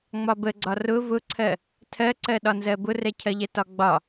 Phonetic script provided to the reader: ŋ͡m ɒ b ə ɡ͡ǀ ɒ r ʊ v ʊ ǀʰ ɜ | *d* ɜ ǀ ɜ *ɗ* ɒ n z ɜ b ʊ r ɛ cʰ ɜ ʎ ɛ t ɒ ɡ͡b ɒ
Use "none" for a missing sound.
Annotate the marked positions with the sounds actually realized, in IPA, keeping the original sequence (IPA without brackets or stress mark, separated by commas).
tʰ, ɗ